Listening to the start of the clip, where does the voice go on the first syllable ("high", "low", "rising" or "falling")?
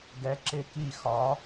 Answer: rising